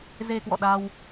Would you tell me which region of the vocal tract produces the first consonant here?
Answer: tongue tip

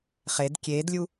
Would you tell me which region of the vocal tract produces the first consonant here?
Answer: uvula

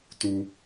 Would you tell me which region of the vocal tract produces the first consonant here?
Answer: tongue tip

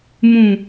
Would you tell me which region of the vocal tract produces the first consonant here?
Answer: lips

